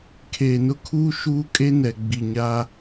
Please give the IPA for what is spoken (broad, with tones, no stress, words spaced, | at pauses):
kʰeː˨nʊ˦kʰuː˦ ʃuː˦kʼe˦nɛ˨ ɡ͡bi˨ɲaː˦